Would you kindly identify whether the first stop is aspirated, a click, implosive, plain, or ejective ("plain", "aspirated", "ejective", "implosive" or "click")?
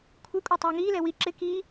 aspirated